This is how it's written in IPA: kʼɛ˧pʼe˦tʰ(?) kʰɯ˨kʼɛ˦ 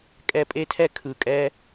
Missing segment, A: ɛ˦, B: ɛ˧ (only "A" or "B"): A